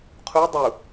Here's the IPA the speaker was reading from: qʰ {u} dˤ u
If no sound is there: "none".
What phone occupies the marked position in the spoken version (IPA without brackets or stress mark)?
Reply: u